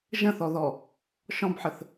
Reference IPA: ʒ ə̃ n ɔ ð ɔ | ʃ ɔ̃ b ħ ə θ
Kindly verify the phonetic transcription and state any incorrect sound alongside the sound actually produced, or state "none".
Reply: n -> θ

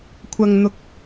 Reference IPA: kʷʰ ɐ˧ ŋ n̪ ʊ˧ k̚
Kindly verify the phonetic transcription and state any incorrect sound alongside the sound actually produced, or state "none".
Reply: none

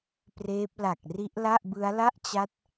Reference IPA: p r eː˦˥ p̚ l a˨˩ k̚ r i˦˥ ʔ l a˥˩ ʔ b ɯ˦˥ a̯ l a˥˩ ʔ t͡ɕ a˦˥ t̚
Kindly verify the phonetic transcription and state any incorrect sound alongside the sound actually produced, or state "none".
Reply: none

